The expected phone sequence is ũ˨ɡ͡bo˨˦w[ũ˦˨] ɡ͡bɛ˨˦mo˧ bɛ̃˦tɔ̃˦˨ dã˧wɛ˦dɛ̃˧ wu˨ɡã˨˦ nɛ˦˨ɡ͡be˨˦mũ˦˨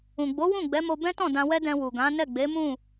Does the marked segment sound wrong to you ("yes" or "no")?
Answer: no